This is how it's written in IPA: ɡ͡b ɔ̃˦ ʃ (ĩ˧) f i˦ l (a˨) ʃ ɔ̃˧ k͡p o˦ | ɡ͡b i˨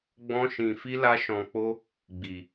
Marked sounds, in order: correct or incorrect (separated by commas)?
correct, incorrect